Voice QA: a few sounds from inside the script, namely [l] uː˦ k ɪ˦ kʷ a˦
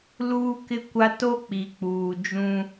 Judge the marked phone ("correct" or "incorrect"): correct